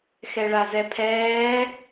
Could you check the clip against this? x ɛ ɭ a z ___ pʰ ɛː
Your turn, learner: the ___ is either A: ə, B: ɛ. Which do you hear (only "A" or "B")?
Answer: B